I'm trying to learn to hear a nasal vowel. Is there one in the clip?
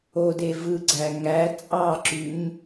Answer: no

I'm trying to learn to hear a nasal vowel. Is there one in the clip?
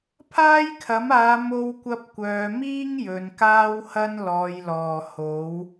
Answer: no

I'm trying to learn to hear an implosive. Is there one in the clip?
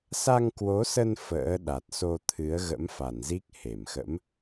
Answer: yes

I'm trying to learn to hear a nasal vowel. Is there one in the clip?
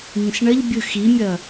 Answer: yes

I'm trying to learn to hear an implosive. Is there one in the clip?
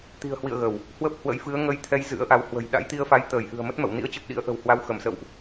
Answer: yes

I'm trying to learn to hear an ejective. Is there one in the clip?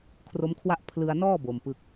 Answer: no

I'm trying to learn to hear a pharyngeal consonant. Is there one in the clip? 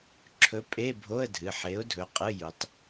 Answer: yes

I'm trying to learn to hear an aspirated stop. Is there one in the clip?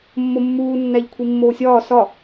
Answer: yes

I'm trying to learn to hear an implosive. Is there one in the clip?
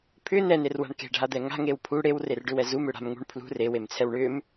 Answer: no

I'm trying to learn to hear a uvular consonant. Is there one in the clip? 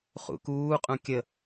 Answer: yes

